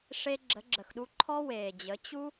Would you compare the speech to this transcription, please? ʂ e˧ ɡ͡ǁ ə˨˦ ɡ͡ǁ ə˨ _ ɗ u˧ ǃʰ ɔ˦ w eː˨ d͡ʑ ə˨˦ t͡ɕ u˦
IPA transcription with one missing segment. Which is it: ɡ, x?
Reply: x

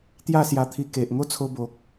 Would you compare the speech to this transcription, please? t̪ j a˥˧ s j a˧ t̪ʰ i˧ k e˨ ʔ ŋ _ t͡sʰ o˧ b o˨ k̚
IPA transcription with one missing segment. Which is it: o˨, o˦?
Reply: o˦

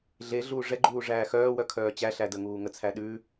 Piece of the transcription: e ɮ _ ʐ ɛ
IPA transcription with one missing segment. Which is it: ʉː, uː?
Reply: uː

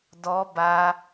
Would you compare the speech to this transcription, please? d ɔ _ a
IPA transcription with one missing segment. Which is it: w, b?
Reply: b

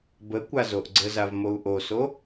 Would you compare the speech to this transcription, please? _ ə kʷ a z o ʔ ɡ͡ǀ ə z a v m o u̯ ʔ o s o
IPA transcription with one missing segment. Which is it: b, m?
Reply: b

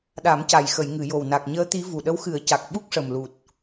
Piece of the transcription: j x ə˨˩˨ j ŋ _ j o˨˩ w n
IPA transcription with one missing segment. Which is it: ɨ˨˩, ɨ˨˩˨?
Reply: ɨ˨˩˨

